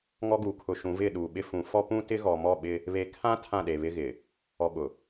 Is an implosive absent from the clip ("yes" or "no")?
no